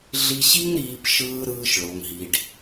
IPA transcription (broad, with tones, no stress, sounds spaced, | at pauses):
ɮ i˧ ɕ i˦ ŋ ɾ iː˧ p ʃ ɯː˧ ɾ ɯː˧ ʃ ɭ o˨ ŋ ɦ i˨ ɖ